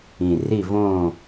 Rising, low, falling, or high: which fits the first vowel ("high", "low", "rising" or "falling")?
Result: low